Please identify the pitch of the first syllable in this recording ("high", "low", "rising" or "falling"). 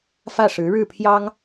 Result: falling